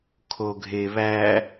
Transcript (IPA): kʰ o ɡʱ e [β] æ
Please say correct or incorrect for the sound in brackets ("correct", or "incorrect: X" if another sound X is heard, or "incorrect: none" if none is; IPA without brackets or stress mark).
correct